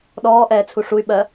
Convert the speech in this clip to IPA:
ɗɔːʔɛːt͡sʰu ʂuy̯ɓɜ

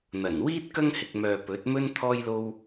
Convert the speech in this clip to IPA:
n̪ɐ˨˩nwiː˥t̚ kɐ˥ŋhɪ˨k̚mœː˨ pɵ˨˥t̚mɵ˥n t̪ʰɔː˥jlo˥w

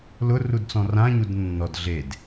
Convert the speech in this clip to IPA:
lʊ rudt͡sɔ̃rã ɲudnːɔd ɮed

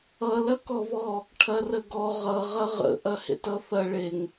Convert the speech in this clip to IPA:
ʌ lɐkɔβɔ | ʈʰɐrəɡɔ ʁʌ ʁɐʁə̰ ʔɐhḛtʌθɐ ɭeŋ

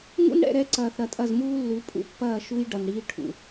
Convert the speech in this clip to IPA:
ŋṵ˦nɽɛ̰˦˨ɾɛ˦ǀɐː˨θ ɾɐ˨tʼɐ˦˨zmuː˦lːʉ˨˦ pʼṵ˦pːɐː˦˨ʃu˦j ɖɐ˨nɽiː˦ ʈʰṵ˨

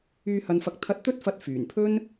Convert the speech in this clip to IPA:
yː˧ hɐ˧nfɐ˧k̚ t̪ʰɐ˧t̚t̪ɵ˥t̚fɐ˧t̚ fyː˨˩npʰɵ˥n

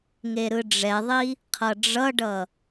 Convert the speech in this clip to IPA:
ŋeɾɯɖ͡ʐɛðˤi | qʰʌɖ͡ʐʌɖʌ

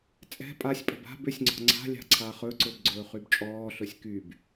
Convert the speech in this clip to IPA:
t͡sʼɛ̤ pʼasʲpʼə̤b a̤b ʏsʲŋ͡ǀɔ̤ ŋ͡ǀa̤ lʲa̤ǀʰaχɵǀɵb ɡ͡ǀɵːχybt͡ʃʼɔːɬɵsʲ kyb

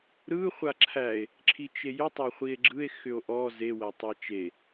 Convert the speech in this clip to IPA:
ɾɯ χʷaǁʰæe̯ | ǁʰit͡ʃejʏ tˤæχʷie̯ɡ͡ǁɯe̯ xʏo̯ʔɔ ze wætˤat͡ʃe

